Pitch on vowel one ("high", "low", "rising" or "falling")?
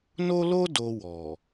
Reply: high